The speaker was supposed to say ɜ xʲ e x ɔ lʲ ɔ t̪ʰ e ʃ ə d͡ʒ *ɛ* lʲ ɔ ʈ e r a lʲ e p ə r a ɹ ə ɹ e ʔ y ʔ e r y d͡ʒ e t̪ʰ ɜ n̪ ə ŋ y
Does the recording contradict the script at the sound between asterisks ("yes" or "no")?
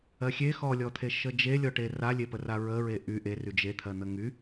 yes